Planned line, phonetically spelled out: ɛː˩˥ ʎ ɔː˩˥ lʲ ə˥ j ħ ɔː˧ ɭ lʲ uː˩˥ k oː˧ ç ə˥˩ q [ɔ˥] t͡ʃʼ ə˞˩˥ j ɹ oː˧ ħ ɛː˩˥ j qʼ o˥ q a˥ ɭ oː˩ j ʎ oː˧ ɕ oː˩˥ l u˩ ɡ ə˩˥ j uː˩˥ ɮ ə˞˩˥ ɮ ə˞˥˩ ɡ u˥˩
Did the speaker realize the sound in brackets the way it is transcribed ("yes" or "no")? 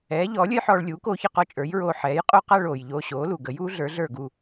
yes